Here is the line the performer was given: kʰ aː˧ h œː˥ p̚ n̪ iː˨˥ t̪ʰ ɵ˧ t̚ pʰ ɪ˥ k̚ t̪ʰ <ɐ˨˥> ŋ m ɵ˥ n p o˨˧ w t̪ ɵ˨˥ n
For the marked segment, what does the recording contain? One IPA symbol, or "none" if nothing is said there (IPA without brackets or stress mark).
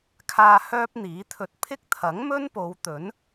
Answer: ɐ˨˥